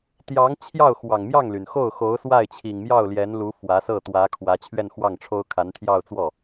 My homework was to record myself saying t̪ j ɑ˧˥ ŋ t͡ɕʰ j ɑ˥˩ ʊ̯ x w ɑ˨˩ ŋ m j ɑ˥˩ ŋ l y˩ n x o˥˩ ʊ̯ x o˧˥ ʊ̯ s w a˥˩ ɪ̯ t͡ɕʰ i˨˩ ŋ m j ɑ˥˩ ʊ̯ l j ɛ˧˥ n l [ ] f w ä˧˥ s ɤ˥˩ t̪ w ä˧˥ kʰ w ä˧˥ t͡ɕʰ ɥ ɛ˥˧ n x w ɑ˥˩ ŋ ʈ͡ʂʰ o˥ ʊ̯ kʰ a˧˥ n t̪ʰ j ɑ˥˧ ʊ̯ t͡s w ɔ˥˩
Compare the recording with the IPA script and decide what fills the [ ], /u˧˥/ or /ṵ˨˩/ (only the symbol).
u˧˥